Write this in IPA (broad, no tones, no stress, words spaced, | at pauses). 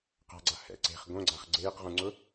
qa̤ɡ͡ǀa hɛ̰ ǀe̤χ ɡõɡ͡ǀaχ ɡ͡ǀeːqʁũŋ͡ǀʊ